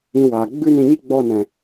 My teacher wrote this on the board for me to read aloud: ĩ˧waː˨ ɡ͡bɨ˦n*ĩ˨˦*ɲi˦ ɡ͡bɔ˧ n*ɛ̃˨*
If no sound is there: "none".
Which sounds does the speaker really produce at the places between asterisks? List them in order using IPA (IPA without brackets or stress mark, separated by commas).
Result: ĩ˧, ɛ̃˨